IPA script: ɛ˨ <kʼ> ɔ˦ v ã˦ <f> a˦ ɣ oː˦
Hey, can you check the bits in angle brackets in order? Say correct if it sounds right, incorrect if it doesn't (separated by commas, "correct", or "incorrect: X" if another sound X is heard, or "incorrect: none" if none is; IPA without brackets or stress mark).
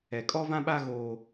correct, incorrect: ɓ